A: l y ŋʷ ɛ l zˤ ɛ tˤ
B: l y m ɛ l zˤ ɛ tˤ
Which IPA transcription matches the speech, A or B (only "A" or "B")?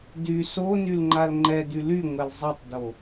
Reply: A